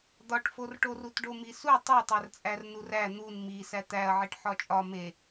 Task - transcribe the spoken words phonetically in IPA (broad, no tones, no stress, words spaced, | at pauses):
d̪ɒʈforʈorut ɖomisu tˤotˤært͡sʼær nuræ n̪un mi sæt̪æɐ̯ʕiʈ ħɒt͡ʃʼɒ me